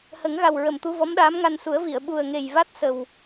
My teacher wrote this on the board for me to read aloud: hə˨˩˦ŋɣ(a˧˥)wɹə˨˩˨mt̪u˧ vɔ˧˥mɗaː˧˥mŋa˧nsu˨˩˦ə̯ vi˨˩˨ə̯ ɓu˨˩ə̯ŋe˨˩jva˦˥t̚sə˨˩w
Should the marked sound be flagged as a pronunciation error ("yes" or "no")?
yes